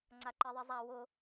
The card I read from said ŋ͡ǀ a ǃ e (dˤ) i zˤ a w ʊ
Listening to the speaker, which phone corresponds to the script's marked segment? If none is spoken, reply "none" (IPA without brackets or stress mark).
ðˤ